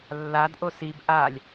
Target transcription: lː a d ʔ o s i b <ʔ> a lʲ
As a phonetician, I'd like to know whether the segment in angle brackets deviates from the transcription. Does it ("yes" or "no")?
no